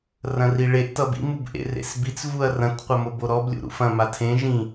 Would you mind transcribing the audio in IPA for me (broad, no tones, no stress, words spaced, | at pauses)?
rɐ̃riɭeʔ tʌbḭ mubʔḛrḛsbit͡s vuɐ̯rɐ̃t qʷɐmoboɾɔb lʲṵɾṵfɐ̃ matʰẽ ʒĩ